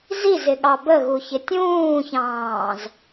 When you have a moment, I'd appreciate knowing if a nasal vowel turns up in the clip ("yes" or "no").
yes